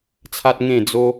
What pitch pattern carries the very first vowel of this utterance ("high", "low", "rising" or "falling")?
high